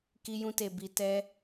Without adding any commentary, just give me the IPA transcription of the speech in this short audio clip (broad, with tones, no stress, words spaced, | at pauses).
ki˧jũ˧te˨ bi˨ tɛ˧